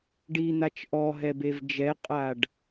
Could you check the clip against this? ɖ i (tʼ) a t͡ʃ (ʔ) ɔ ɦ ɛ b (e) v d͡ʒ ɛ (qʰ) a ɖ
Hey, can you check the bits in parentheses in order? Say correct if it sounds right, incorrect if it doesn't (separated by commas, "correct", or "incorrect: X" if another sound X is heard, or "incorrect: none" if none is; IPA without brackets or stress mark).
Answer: incorrect: n̪, correct, correct, incorrect: qʼ